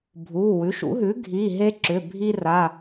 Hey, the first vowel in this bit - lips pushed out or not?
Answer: yes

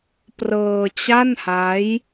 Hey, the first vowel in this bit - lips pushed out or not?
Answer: no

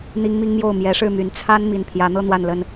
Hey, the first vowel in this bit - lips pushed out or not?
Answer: no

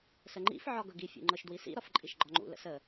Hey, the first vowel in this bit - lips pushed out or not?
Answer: no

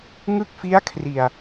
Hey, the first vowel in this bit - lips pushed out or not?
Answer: no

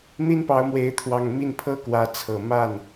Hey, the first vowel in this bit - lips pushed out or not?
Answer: no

